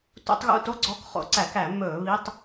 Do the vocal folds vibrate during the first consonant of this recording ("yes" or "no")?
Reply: no